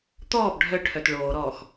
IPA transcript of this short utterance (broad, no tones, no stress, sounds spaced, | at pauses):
t̪ ɔː b ɖʱ œ ʈʰ œ t ɭ oː ɾ ɔː x